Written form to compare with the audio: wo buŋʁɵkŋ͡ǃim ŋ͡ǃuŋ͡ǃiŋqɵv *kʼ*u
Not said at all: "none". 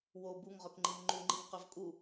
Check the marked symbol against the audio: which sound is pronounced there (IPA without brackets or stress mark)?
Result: kʼ